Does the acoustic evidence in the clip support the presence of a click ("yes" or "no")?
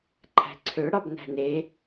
yes